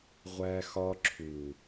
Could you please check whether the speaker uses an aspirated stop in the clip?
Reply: yes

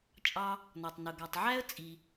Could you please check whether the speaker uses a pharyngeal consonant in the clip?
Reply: yes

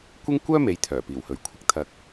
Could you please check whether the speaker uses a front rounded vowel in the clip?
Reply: yes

